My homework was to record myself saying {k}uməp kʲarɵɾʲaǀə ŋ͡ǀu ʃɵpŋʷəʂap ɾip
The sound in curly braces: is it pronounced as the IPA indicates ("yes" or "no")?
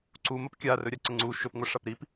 no